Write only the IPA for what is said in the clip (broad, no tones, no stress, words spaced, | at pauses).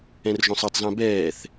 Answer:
ɛ̃rʒõsˤɯtˤzã bɛːθ